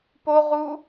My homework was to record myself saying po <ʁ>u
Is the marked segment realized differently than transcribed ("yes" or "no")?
no